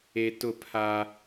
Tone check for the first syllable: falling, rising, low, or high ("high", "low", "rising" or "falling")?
low